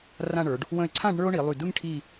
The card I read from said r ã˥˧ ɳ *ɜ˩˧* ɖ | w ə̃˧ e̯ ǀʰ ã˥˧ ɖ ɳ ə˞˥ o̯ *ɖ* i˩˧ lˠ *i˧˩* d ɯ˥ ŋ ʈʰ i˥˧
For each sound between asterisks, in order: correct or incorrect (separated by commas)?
incorrect, incorrect, incorrect